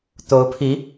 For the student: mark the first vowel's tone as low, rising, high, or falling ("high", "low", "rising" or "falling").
rising